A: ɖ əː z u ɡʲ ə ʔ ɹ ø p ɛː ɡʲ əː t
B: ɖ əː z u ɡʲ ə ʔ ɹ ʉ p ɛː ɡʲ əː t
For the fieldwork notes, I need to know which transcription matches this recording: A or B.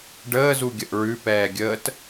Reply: B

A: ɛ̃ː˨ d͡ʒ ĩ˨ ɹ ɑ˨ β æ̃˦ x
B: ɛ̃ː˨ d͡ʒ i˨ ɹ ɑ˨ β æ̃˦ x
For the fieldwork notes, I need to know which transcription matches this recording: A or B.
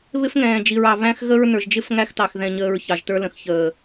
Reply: B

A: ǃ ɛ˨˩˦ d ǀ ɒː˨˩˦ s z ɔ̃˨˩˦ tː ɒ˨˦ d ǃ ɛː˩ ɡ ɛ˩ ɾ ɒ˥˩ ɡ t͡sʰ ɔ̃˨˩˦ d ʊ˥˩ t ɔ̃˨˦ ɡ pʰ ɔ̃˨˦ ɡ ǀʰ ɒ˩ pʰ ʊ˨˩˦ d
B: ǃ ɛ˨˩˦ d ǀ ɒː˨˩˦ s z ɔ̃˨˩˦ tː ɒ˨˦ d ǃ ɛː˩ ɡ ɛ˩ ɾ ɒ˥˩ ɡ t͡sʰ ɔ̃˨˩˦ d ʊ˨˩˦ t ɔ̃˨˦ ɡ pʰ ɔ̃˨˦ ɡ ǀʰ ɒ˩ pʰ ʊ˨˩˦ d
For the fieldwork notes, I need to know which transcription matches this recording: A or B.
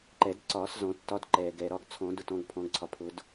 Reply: A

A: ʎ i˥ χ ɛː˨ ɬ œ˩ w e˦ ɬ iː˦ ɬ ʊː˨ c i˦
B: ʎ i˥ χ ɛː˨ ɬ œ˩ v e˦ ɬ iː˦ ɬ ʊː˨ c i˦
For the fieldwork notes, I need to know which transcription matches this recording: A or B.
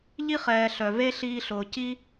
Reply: B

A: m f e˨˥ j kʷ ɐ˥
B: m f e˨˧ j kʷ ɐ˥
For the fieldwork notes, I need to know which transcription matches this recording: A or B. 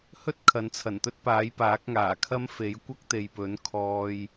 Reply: A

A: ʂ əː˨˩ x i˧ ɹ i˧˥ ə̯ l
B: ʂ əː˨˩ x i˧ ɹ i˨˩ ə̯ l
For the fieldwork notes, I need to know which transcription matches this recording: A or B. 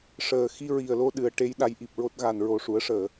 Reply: B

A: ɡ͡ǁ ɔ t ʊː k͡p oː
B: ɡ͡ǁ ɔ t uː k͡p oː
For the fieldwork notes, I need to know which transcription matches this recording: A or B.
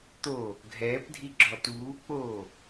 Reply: B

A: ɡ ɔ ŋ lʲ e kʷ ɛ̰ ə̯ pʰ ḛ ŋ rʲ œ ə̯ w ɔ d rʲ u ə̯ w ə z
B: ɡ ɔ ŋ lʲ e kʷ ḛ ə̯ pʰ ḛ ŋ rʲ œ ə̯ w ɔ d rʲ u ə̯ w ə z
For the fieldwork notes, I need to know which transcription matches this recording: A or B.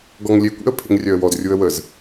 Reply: B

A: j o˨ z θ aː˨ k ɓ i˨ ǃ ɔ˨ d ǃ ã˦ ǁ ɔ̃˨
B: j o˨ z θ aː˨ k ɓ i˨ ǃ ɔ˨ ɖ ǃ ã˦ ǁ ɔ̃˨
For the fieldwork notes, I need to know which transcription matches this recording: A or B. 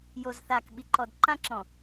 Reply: A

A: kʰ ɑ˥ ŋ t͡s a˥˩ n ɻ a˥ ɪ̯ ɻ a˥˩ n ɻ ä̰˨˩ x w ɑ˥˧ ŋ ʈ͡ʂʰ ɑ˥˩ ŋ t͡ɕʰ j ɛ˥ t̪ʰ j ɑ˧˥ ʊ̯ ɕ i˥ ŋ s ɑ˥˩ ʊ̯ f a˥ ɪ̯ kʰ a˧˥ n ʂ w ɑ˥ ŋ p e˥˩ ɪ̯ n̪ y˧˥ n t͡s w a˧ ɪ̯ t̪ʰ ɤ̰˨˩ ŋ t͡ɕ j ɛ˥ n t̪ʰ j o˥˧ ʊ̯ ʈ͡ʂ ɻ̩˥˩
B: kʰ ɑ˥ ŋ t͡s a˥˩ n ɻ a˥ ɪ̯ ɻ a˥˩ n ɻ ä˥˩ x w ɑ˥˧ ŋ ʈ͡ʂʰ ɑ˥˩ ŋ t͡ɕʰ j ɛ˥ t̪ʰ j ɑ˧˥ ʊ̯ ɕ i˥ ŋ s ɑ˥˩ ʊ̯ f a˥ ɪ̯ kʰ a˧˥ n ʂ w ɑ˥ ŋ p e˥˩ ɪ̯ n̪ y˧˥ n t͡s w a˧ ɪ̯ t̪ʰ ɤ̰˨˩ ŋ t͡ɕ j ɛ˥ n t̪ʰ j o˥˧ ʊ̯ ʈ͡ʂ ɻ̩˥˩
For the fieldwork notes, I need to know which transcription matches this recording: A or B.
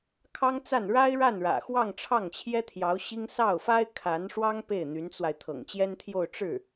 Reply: A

